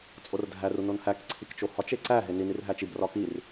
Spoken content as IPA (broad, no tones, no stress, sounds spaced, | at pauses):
t͡sʼ o r dʱ æ r u n o n h æ k ǀʰ i k t͡ʃ o h ɒ t͡ʃ e ǀ æ ɦ e n i n i r ɦ æ t͡ʃ i b r ɒ k i r